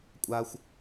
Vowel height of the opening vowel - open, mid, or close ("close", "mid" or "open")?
open